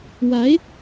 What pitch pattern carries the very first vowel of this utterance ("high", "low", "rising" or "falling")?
rising